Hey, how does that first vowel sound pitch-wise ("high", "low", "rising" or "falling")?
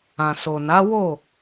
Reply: low